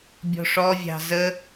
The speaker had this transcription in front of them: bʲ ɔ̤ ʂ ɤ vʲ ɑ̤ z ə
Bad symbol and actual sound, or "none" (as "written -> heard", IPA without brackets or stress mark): ɤ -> ɔ